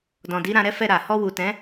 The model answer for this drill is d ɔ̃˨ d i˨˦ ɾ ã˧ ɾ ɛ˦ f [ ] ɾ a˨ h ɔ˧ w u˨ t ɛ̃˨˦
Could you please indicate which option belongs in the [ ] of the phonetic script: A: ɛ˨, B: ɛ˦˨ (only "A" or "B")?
B